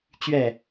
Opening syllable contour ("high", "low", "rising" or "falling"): falling